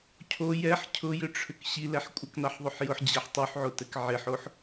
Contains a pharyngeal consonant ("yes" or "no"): yes